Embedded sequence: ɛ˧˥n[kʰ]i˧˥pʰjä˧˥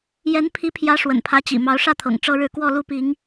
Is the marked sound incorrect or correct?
incorrect